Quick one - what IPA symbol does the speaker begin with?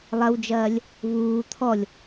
lˠ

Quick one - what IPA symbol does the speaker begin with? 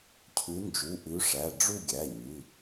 cʰ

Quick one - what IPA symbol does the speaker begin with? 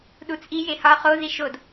ɗ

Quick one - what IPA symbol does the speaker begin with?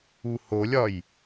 u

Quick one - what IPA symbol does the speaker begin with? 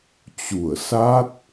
t͡ɕ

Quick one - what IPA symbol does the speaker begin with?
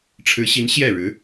ʈ͡ʂʰ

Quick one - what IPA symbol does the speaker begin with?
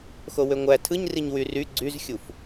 x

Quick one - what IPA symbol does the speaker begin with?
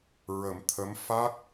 ɹ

